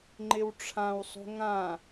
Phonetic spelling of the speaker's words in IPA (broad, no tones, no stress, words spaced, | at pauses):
ŋ͡ǃɪwʈ͡ʂʰãwsˤo̤ ŋã